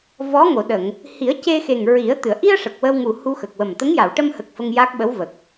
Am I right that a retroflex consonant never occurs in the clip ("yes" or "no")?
no